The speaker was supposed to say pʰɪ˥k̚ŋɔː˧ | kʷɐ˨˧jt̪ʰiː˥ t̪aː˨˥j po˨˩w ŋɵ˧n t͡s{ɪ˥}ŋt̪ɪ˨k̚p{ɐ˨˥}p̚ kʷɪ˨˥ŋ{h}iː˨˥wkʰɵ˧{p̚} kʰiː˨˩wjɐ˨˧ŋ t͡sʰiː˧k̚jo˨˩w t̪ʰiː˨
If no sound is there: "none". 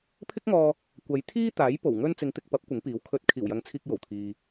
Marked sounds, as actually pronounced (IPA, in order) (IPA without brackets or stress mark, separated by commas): ɪ˨˧, ɐ˨˥, p, t̚